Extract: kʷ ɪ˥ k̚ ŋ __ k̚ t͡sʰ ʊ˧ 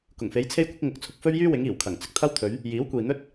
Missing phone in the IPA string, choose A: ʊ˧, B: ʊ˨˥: B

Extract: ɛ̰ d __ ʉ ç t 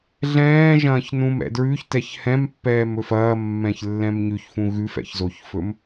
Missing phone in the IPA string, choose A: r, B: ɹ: B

